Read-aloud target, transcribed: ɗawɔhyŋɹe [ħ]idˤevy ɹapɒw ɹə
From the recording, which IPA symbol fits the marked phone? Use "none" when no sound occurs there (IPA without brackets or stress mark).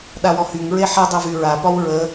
ħ